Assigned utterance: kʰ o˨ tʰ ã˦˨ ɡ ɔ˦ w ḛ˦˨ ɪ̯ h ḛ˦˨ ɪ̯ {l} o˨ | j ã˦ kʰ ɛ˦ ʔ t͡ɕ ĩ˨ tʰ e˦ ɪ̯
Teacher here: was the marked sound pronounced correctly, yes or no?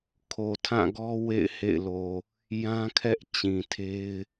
yes